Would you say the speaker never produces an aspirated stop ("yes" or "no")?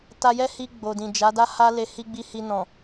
yes